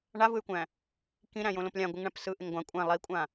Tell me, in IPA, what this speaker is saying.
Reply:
ɳavɯy̯kʷæ̃ | kĩ ɾæ̃jõlõplʲã ɡʷɯŋɳæ̃psɯ ʔɪŋɡʷã kʷʼæ̃ lˠikʷʼã

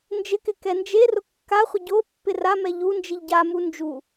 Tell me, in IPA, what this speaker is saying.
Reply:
nd͡ʒɪkɪ kɛnd͡ʒerʊ kːaχʷɪ ɟo pːɪramɛ ʎund͡ʒiʎ ɟamu nd͡ʒu

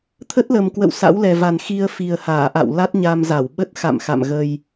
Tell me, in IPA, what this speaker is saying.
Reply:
t̪ʰə˦˥t̚lə˨˩mkwə̰˧˨w sa̰˧˥wlɛ˨˩va˨˩n xi˧ə̯ fi˨˩ə̯haː˧˩ʔa̰˧˨w la˦˥t̚ɲa˧mza˧˩w ɓə˦˥t̚xa̰˧˨m xa̰˧˨mɣə˧j

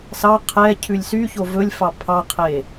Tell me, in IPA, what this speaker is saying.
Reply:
sɑ qʰɛ cʰʉlʲsyço vɵlʲfɑ pʰɑqʰe

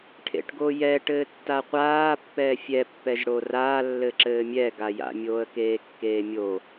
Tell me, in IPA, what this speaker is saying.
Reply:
ʈʰḛʈɡojɛ ʈɘːtːaqʷaː pːɛːfʲɛ pːɛʒɽoraː lːɘǁɘːmʲɛ ɡaja̰ mʲoːə̯keːkːeːmʲo

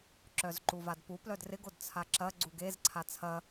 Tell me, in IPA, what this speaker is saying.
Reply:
ǁœzǃuvadpu plœdrɪɡod t͡sʰaǁɐ ɡ͡ǀuɡez ǀʰat͡sʰɐ

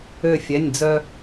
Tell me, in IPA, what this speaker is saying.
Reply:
ø˥˧fʲɛ˧˥˧nʲd͡zœ˥

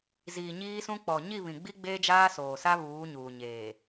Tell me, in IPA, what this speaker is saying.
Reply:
ziː˨ɲiː˦sũ˦ k͡pɔ˨ ɲi˦˨βĩ˨ɡ͡bi˦ ɡ͡beː˦d͡ʒaː˦soː˨sa˦ βuː˨˦ɲuː˨ ɲeː˨

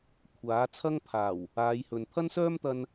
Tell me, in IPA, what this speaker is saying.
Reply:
kʷʰaː˨˥ t͡sʰɐ˥ŋpʰaː˨˩w | aː˨˧jhɵ˨n pʰɐ˥nsœː˥mt̪ɐ˧n

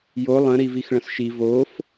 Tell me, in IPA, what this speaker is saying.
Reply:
jo lˠə̃ ɾivixɭə̃sʃi vof

